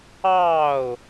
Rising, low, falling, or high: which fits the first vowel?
falling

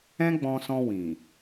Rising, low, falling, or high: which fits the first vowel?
high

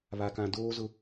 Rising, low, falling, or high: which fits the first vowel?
low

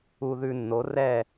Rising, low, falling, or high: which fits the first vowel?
low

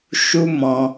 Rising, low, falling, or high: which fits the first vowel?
high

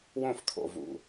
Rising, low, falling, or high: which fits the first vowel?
falling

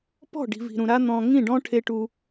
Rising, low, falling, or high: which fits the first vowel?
falling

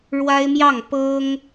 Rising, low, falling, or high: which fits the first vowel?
high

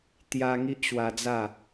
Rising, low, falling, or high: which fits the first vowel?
high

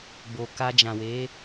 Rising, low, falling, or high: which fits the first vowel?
low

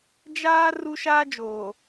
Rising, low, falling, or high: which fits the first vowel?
high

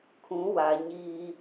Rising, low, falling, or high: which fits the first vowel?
rising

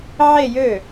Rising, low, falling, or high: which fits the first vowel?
falling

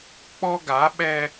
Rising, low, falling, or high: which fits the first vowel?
high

